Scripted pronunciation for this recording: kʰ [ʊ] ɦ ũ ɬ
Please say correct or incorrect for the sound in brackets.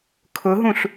correct